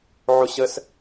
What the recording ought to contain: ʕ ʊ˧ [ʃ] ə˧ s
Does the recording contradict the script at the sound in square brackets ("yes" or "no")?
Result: yes